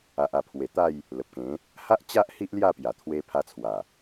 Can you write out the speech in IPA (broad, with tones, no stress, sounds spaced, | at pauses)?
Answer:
a˨ ʔ a˨˩ pʰ w e˨˩ t̪ a˥˧ j | l ə˨ p̚ k ẽ˨˦ | h a˦ ʔ t͡ɕ a˦ ʔ h i˦ ʔ l j a˥˧ p j a˨˩ t̪ʰ w e˧ pʰ a˧ t͡sʰ w a˨˩